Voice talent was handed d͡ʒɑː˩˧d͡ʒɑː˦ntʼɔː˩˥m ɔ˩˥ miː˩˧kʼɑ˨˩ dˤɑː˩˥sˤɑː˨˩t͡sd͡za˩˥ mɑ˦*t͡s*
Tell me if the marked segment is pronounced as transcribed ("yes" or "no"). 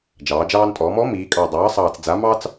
yes